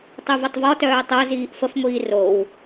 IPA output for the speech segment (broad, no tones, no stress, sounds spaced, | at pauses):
tˤ u v ə tˤ v ɔ t œː tˤ o z iː ʔ f ə f ŋʷ iː r o w